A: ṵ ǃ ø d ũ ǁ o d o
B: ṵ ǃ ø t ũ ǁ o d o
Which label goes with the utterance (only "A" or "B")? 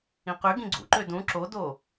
A